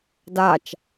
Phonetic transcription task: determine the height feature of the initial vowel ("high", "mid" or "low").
low